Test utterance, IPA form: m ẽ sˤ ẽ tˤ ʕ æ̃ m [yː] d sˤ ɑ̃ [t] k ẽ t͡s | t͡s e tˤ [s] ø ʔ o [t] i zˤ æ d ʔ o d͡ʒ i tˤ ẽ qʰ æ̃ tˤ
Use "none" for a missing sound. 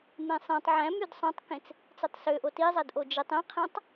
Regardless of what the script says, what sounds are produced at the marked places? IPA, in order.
y, tˤ, s, t

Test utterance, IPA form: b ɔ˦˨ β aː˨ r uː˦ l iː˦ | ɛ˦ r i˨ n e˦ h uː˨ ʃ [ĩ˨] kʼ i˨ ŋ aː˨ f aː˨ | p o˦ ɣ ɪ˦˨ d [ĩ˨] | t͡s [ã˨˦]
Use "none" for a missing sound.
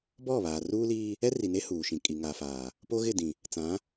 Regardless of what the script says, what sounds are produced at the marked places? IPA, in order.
ĩ˨, ĩ˨, ã˨˦

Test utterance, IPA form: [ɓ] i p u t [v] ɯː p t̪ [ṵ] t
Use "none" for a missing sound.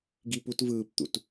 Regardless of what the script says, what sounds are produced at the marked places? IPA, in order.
ɡ, v, ṵ

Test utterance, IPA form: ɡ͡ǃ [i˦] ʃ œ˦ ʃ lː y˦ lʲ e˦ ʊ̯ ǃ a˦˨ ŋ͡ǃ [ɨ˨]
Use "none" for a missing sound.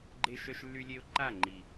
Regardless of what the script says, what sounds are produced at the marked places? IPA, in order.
e˦, i˨

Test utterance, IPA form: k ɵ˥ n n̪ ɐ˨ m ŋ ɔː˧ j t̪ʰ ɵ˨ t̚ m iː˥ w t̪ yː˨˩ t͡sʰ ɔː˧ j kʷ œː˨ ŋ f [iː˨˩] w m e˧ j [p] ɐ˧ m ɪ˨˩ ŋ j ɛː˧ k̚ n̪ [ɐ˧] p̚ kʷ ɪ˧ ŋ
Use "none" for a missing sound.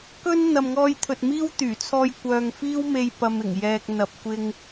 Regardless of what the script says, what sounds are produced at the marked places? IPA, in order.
iː˥, p, ɐ˨

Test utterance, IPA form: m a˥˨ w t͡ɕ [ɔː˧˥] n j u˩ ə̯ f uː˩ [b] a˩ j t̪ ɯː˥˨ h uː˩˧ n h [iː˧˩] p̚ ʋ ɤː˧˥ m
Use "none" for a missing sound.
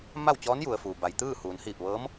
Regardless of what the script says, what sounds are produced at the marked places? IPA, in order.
ɔː˧˥, b, iː˧˩

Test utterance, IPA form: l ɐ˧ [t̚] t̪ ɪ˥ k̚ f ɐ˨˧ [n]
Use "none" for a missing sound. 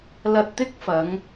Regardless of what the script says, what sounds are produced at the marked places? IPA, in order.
t̚, ŋ

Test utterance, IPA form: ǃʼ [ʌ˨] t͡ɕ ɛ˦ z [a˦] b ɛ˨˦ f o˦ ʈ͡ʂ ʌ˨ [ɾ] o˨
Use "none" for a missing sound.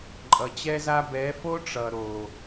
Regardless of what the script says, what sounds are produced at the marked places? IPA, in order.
ʌ˨, a˦, ɾ

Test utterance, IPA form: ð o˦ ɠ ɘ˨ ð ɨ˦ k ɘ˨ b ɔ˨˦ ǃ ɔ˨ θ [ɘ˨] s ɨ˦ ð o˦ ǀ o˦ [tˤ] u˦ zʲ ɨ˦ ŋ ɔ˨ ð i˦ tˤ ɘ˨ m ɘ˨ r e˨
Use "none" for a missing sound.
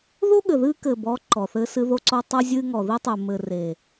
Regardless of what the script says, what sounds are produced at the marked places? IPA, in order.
ɘ˦, tˤ

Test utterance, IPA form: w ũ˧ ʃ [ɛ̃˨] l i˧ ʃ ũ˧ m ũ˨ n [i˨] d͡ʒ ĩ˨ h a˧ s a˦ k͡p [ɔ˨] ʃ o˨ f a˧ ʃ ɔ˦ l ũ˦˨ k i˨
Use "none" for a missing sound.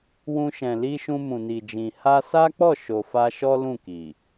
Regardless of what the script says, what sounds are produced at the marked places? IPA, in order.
ɛ̃˨, i˨, ɔ˦˨

